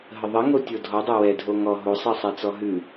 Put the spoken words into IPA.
ɦ ə ðˤ ə ŋ o tʲ o dʱ ɔ dˤ ɛ w ɛ dʱ o ŋ ɔ ɦ o sˤ ɛ sˤ ɛ t͡s ɔ ɦ ʉ

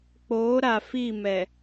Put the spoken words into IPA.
k͡p oː˨˦ ɾ a˨ f i˦˨ m ɛ˨

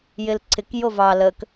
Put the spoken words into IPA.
j ɪ l ǀʰ ɪ k j o v ɑ l ə k

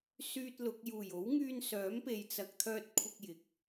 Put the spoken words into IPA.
s yː˥ t̚ l ʊ˨˥ k̚ j uː˨˩ j o˨˥ w ŋ yː˧ n s œː˨˥ m p e˧ j t͡s ɐ˧ k̚ t̪ʰ œː˥ t̚ kʷʰ ɪ˥ k̚ j ɪ˨ k̚

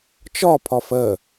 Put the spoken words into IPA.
t͡ʃ ɒ pʰ ɒ f ɜ

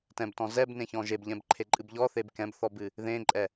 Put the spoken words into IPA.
t ɛ̃ b t ɔ̃ z ɛ b n ẽ ç ɔ̃ ʒ e b ʎ ɛ̃ b ǃʰ e ǃʼ ɨ b ʎ ɔ θ e b k ɛ̃ b θ ɔ b ɨ | ð ẽ ǃʼ ɛ

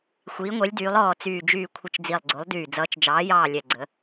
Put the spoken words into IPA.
xʷ iː˩˧ ŋʷ ɛ˩˧ lʲ d yː˩˧ lˠ ɔː˨˩ t͡s yː˨˩ d͡ʒ yː˨˩ kʷʰ ə˨˩ t͡ʃ d͡z i˨˩ lˠ ɡ͡ǀ o˩˧ lˠ d yː˨˩ d͡z ʌː˩˧ t͡ʃ d͡ʒ ɑː˩˧ j ɑː˨˩ lʲ ɛ˨˩ ɡ͡ǀ ə˩˧

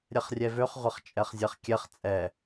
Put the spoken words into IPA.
ɾʲ ɛ χ rʲ ɛ v ø χ ʁʷ ɐ χ t͡ʃʼ ɛ χ zʲ ɛ χ kʲ ɛ χ t͡sʼ ɛ

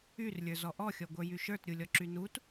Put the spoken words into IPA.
y r lʲ ə˞ z ɔ ʔ ɔ xʲ ɔ ɡʷ ə˞ j y ʃ ə˞ t ɾʲ u lʲ ɔ ǁ y n u t

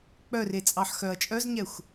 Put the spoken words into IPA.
k͡p œ r e t͡sʼ ɑ ħ x œ ɐ̯ t͡ʃʼ œ z ɲ ɛ xʷ

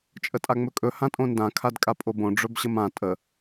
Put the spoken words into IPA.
t͡ʃʼ ə tʼ a ŋ͡m ɵ kʼ ɵ h ã tʼ õ n d ã kʰ a d kʼ a pʼ o b õ ɖ͡ʐ ɵ b ɕ ə m ã tʼ ə

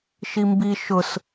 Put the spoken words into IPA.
ʃ i m b i ʃ ʊ s

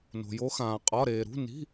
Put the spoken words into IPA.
n o̤˩ j o˨˦ x ãː˩ qʼ ɒ˩˧˩ ɾ eː˩ ɾ ṳ˩˧˩ n i̤˩˧˩

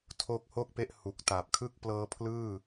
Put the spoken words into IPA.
tʰ o˦˥ k̚ h o˥˩ k̚ p e˦˥ ʔ h u˨˩ k̚ t a˨˩ p̚ kʰ ɯ˥˩ k̚ p l ɤː˦˥ pʰ l ɯː˥˩

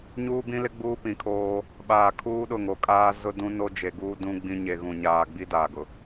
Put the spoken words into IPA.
ɲ uː˦ b ĩ˦ l ɪ˦ ɡ͡b uː˦ p ĩ˨ kʰ oː˦ | ɓ aː˨ kʰ uː˦ ɗ ʊ˦˨ ŋ o˨ kʼ aː˦ z ʊ˦ d ũ˦ n o˦ d͡ʒ e˨ ɡ uː˦ d ũ˦ ɡ͡b ĩ˦ ɲ e˨ ɣ ũ˨ ɲ aː˨ ɡ͡b i˦ d aː˨ ɡ ʊ˨

